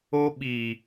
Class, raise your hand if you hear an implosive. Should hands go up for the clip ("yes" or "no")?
yes